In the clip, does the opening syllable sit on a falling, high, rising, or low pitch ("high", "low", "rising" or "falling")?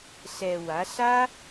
low